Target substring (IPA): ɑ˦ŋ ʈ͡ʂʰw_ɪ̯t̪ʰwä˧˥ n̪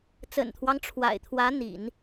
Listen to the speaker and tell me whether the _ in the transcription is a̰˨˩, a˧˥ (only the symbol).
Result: a̰˨˩